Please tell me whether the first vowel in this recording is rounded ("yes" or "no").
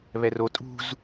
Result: no